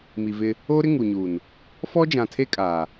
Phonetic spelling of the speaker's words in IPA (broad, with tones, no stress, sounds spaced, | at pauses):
m i˨ v ɪ˦ | oː˦ ɾ ɪ˦ ŋ u˨ ɲ uː˨ n | f ɔ˦ d͡ʒ ã˨ tʰ e˦ kʼ aː˨